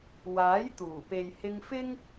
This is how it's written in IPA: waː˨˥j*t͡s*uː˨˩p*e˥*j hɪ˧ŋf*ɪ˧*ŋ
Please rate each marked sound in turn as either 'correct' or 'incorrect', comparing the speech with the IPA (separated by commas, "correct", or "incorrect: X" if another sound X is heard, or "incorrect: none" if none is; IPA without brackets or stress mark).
incorrect: t̪, incorrect: e˨, incorrect: ɪ˥